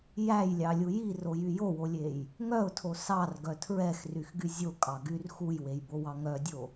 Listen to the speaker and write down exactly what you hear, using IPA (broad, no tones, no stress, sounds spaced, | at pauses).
j æ j lʲ ɑ lʲ u j i r o j y j o w o lʲ e j | ŋ œ ʊ̯ tʰ o s ɑ r ɡ œ tʰ ɹ ɛ x r y x ɡ y zʲ o kʼ ɑ ɡ y r x u j w e j b o w ɑ ŋ œ dʲ o